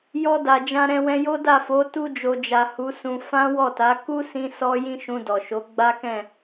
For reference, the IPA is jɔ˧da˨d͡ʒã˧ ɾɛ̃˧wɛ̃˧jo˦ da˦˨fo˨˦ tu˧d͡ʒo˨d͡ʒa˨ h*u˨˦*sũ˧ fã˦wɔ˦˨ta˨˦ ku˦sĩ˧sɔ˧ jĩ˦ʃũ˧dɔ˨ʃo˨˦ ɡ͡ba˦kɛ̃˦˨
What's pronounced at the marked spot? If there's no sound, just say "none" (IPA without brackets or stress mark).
u˨˦